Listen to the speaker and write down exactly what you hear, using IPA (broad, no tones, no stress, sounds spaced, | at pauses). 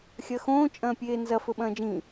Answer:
xʲ ɐ x õː t͡ʃʼ ɐ̃ː pʲ eː n z ɐ f ɵ ɓ ɐ̃ː d͡ʒ ĩ